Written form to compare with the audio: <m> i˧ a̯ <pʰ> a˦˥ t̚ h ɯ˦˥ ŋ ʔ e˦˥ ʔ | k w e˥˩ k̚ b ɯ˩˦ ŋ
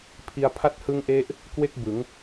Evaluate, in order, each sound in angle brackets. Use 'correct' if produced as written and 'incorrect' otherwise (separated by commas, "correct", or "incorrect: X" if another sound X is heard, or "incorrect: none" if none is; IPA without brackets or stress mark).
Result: incorrect: pʰ, correct